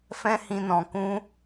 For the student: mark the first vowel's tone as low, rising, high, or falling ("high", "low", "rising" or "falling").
high